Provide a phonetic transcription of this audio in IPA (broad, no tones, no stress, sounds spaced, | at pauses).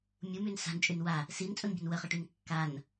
mʲ u m y n s a̤ n t͡ʃʼ y n w a | s i n t͡sʼ u n bʲ ə̤ n w ə χ ə ʈ y n kː a n